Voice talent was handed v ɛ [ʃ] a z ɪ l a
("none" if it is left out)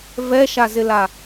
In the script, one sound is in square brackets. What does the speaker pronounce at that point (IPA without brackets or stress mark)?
ʃ